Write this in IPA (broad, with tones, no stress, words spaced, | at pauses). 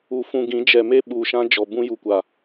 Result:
u˨fũ˨ɡĩ˨˦ d͡ʒɛ˨me˦ ɓuː˨ʃã˦d͡ʒɔ˨ bũ˦ju˨kʷa˨